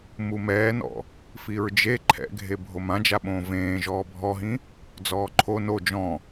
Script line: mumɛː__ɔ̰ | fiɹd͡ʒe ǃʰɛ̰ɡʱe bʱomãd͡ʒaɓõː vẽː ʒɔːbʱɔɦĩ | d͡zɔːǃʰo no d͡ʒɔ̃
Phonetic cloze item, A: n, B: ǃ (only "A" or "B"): A